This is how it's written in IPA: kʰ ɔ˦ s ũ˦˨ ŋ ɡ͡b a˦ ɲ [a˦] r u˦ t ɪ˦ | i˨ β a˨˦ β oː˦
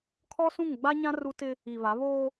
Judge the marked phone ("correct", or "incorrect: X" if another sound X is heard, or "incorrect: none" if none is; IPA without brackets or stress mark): incorrect: ã˦